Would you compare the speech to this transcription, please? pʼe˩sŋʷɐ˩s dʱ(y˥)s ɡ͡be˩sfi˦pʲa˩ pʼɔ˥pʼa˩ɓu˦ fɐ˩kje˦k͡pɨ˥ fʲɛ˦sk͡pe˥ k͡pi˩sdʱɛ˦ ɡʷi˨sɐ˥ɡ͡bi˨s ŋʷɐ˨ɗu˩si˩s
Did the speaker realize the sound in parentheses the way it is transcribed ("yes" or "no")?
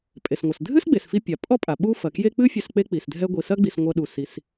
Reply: no